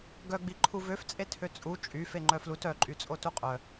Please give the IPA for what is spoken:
ɡ œ ɡ͡b i ǃʰ u v ø f t͡sʼ e tʰ ø t͡sʼ u t͡ʃʼ y f e ŋ͡ǃ œ f l u t œ ǃʼ y t͡sʼ o t u qʼ œ

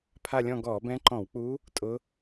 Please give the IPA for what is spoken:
pʰ a˥˧ lʲ ɔ̃˥˧ ɡ ɔː˧˩˧ b ɛ̃˧˥ ǃ ɔ̃˧˩˧ w k͡p uː˧˥ | tʼ ʊ˧˥

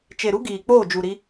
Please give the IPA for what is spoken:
t͡ʃ e˨ ɾ u˦ ɡ iː˨ k͡p oː˦˨ d͡ʒ u˨ ɾ i˦

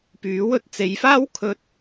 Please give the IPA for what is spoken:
p yː˨˥ w ɵ˥ t̚ t͡s e˨˧ j f aː˥ w kʰ ɵ˥ t̚

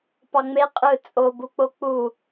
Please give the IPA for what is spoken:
p ɑ ŋ͡m e qʼ ɯ t͡sʼ o b u k͡p o k͡p u

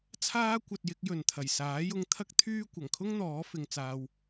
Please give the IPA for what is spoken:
t͡sʰ aː˥ kʷ ɐ˧ t̚ j ɪ˨˥ k̚ j ɵ˨ n t̪ʰ ɐ˨˩ j s aː˨˥ j ʊ˧ ŋ t̪ʰ ɐ˥ k̚ t̪ʰ yː˥ kʷ ɐ˨˩ ŋ kʰ ʊ˥ ŋ n̪ ɔː˨˥ f ɪ˧ ŋ t͡s aː˧ w

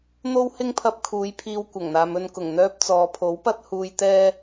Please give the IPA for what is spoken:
n̪ o˥ w h ɪ˥ ŋ pʰ ɐ˧ p̚ kʰ uː˨˧ j pʰ iː˧ w kʷ ɐ˨˩ ŋ n̪ aː˨ m ɵ˧ n k ʊ˨˩ ŋ n̪ œː˧ p̚ t͡s ɔː˨ pʰ o˨˥ w p ɐ˥ t̚ h uː˧ j t̪ ɛː˥

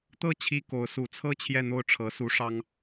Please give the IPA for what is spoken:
t̪ ɤ˥˩ t͡ɕʰ i˥ k o˧˥ ʊ̯ s u˨˩ t͡sʰ ɤ˥˧ t͡ɕʰ j ɛ˥˧ n̪ o˥˩ ʊ̯ ʈ͡ʂʰ ɤ˧˥ s u˧˥ ʂ ɑ˥ ŋ

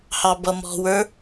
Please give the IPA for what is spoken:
h ɑ b ʌ m ɔ̤ w ə˞

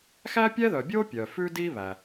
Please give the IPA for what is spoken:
x æ˥ pʲ ɛ˥ ð œ˩ bʲ o˥ pʲ œ˩ f ʉ˥ d i˥ β æ˩

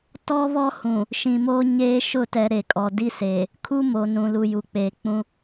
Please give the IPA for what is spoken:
t ɔ˦ β ɔ˦ h ũ˨ | ʃ ĩ˨ m oː˦ ɲ eː˦ ʃ ʊ˦˨ t ɛ˨ ɾ e˨ kʼ ɔ˨ d i˦ s eː˨ | kʰ u˦ m o˨ n ũ˨ l u˨ j u˨ k͡p eː˨ k͡p ũ˦

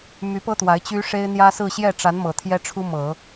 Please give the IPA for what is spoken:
m y˧˥ p ɤ˥ t̪ w a˧˥ ɪ̯ t͡ɕ y˥ ʂ e˥ ɪ̯ n̪ j ä˥ s ɹ̩˥˧ ɕ j ɛ˥˩ ʈ͡ʂ a˧˥ n m ɤ˨˩ t̪ʰ j ɛ˥ ʈ͡ʂʰ u˥ m ɤ˨˩˦

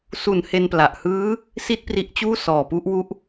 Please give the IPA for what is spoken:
s u˩˦ n h e˧ n p l a˨˩ ʔ h ɯː˦˥ | s i˥˩ t̚ p r i˦˥ ʔ t͡ɕ uː˥˩ s ɔː˨˩ p u˦˥ ʔ w u˦˥ ʔ

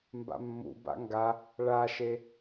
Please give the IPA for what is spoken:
m b a̰ mː ṵ b a̰ ŋ ɡ a | ɭ a ʃ e

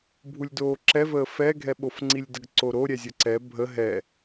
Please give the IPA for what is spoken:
bʱ u lʲ d oː ǁ ɛ v əː f ɛ ɡʱ ɛ ɓ o f ŋ͡ǀ i lʲ d ə ɡ ǀ o ɾ o ɾʲ ɛ zʲ ə ǀ ɛ bʱ ə ɦ ɛ

